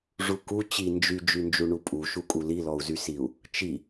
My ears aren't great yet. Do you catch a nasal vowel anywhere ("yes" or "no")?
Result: no